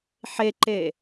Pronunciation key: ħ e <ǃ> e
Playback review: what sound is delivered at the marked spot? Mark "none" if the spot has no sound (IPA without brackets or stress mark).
ǃ